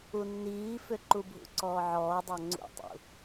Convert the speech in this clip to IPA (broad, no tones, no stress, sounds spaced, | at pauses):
u nː iː f ʏ ǃ u bʱ ṵ ǀ ɔː ʕ ɔː dˤ a ŋ͡ǀ ṵ tˤ ṵ